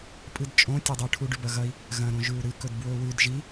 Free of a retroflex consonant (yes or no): no